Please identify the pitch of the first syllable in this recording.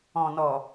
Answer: low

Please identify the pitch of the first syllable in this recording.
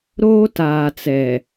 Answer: high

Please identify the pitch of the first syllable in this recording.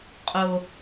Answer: low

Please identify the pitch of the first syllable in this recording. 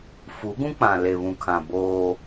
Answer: rising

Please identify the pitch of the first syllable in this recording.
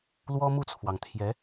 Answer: high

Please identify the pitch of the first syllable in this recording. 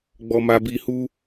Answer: low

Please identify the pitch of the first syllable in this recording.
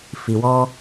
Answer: low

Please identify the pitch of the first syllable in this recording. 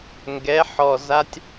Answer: rising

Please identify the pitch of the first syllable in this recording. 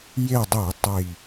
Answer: falling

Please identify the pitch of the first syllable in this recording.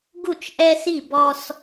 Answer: falling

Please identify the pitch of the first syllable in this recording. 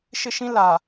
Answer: high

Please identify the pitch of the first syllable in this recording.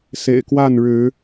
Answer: low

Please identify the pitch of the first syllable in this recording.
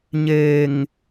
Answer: low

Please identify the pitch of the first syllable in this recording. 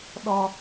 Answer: low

